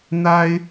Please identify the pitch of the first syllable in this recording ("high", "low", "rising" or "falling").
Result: high